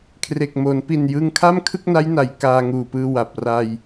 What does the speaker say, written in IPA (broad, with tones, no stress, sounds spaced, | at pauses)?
kʰ r e˨˩ k̚ m oː˩˦ n p i˨˩ n j ɯ˧ ŋ kʰ a˥˩ m kʰ ɯ˥˩ k̚ n a˦˥ j n a˩˦ j k aː˧ ŋ uː˨˩ p ɯː˧ w a˨˩ p̚ r a˧ j